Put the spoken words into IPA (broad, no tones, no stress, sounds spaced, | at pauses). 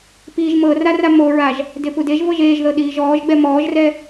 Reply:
p iː ʒ m ɤ r a r a m o ɹ a ʒ | d e p u d e ʒ v ɤ ʒ eː ʒ ð ɤ ɗ iː ʒ ɔː ʒ ɡ͡b ɛ m ɔː ʒ r ɛ